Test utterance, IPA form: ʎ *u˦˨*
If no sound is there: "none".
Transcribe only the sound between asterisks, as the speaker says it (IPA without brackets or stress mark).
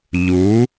u˨˦